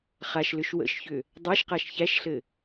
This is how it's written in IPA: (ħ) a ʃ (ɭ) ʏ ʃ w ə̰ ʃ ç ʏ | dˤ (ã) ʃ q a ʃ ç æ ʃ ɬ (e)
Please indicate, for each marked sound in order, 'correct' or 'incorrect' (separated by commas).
incorrect, incorrect, incorrect, incorrect